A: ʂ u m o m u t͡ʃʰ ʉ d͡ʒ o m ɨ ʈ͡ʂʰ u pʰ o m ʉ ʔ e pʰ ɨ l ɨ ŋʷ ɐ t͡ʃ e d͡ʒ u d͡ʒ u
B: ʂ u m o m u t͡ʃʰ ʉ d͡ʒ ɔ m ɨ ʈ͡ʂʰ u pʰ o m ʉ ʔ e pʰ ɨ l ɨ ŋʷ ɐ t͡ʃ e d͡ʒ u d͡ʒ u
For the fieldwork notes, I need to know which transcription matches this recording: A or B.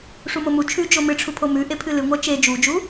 A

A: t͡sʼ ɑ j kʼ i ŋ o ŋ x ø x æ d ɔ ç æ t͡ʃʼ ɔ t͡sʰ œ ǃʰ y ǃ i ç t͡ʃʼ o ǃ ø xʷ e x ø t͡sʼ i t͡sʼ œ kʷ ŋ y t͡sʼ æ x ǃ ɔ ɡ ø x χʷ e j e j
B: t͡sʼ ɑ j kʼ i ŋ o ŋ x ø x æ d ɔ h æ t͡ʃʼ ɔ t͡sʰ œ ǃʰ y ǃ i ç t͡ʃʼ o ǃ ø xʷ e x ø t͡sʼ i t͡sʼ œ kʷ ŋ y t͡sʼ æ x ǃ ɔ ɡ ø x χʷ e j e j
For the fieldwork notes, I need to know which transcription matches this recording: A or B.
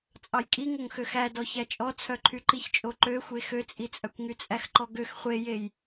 A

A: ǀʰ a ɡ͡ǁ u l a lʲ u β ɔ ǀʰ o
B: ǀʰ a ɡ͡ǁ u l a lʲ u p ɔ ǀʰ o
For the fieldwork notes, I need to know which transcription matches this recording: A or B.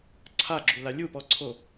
B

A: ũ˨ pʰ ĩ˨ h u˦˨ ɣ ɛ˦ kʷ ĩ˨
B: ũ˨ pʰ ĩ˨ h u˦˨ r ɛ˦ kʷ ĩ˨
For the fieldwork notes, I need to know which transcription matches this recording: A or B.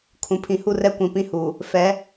B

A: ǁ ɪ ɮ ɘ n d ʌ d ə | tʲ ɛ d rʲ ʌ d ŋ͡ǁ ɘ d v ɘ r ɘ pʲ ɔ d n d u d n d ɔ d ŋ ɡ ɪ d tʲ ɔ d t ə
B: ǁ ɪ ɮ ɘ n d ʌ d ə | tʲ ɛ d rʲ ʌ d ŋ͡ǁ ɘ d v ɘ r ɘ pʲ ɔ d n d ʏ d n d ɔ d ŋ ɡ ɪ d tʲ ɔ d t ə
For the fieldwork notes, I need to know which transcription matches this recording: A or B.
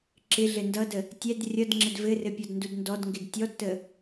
A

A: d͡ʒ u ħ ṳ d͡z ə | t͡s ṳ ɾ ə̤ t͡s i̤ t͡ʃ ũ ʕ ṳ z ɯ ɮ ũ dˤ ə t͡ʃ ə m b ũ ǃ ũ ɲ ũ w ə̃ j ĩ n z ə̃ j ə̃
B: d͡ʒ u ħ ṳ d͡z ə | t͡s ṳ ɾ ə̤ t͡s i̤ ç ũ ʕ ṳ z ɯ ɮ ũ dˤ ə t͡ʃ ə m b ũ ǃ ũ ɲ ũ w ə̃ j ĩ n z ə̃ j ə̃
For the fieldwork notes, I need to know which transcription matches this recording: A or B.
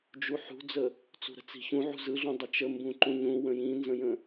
B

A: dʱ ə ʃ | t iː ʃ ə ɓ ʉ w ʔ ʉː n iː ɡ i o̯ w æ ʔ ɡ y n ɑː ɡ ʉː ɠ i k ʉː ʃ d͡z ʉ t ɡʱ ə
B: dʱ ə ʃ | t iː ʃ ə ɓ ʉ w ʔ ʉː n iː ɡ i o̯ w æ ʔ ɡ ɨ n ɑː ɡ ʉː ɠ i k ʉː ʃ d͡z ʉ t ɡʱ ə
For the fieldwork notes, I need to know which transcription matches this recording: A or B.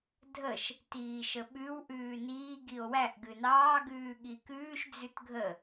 B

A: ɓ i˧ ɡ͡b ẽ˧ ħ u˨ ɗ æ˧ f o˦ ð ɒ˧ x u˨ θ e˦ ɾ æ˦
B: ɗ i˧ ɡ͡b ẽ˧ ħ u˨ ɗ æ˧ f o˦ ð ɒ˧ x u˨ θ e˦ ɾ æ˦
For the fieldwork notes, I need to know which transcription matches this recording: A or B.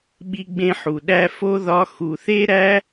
A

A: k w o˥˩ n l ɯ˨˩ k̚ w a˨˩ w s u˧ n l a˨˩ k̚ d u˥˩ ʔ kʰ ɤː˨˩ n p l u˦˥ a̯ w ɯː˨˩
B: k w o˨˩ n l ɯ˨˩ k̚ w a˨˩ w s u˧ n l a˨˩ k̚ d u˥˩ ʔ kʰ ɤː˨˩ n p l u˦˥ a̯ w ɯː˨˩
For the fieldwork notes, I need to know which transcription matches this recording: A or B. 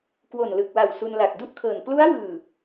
B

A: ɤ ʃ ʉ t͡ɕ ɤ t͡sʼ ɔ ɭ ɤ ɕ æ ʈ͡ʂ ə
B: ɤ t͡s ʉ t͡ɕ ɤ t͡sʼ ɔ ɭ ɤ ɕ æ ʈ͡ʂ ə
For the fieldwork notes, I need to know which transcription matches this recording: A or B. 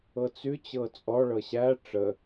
B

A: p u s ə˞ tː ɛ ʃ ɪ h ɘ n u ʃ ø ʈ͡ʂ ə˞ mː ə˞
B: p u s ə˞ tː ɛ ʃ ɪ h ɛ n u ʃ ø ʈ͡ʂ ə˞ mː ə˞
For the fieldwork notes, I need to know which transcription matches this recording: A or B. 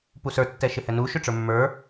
B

